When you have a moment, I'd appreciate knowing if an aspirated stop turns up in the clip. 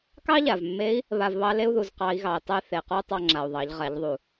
no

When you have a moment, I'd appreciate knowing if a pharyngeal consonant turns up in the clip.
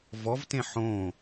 yes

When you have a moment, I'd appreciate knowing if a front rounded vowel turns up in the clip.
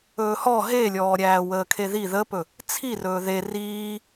no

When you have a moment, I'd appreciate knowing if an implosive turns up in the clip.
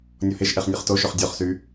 no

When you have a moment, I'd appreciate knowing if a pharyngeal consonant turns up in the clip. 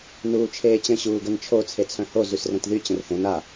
no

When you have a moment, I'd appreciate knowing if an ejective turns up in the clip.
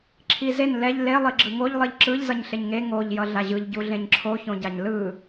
no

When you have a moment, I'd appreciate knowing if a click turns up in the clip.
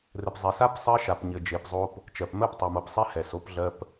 no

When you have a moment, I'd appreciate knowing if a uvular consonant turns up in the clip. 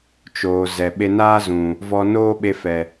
no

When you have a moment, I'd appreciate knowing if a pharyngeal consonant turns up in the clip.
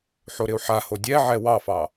yes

